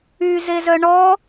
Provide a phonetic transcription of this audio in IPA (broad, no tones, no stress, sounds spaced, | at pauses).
y z e z œ ɳ ɔ